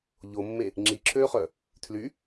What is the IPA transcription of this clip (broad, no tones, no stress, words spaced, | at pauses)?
ʎomːe | ŋ͡ǁiǁʰøːχœ | tʰly